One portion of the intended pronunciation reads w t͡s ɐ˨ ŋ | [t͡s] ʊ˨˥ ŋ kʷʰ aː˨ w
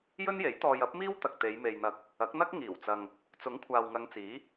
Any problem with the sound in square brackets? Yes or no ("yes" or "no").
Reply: no